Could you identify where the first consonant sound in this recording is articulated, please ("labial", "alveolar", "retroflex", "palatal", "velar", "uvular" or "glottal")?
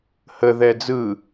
glottal